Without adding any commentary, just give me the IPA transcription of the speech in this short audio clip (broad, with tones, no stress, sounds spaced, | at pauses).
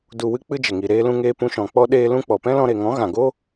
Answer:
d u˨ w ɨ˧ k͡p ɨ˦ d͡ʒ ə˨ ŋ i˨ ɾ eː˧ l ũ˧ ŋ eː˧ p ũ˧ ʃ ɔ̃˨ k͡p ɔ˦ ɗ eː˧ l ũ˧ k͡p ɔ˨ p ɛ̃˦ l ɔ̃˧ ɾ e˨ ŋ ɔ̃˨˦ ɣ ã˨ ɡ o˦